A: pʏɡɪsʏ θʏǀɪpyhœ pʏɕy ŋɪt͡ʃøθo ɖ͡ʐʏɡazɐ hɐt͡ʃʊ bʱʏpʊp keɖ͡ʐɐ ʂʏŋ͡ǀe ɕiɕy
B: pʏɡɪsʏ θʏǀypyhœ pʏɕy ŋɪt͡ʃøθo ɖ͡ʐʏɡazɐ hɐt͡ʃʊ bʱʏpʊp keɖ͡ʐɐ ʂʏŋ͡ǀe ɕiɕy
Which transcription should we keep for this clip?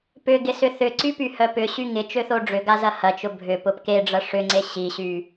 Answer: B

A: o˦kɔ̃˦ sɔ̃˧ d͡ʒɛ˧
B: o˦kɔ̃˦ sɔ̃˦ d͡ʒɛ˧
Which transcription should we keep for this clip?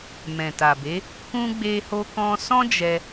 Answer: B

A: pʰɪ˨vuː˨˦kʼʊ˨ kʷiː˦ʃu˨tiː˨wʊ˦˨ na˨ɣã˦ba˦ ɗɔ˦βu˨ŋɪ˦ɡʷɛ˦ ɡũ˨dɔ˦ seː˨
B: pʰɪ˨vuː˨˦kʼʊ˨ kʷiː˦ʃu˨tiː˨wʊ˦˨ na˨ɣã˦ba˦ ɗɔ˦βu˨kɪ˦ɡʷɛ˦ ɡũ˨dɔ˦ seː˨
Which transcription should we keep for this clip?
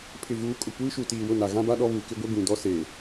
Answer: B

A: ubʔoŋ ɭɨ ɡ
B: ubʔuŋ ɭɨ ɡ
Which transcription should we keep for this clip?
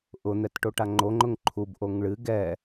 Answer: A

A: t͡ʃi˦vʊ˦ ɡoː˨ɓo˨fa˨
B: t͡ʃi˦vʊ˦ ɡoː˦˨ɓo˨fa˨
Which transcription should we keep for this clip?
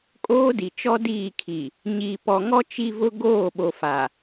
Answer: B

